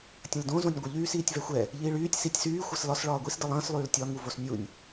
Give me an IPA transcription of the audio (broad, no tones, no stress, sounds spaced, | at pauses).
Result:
tʲ ə̃ l d õ z õ nʲ ɡʷ ə ʎ yː s iː tʲ v ɛ xʷ ɛ | ʎ iː ɭ yː tʲ s i tʲ s yː xʷ ʌ s l ɒ s ɭ ɒː ɡʷ i s d ə lˠ ə̃ː s lˠ yː l tʲ ɒ ŋ u v o s nʲ u nʲ